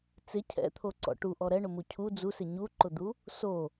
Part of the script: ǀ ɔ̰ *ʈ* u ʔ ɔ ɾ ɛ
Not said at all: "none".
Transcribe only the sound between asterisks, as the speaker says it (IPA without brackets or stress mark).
ʈ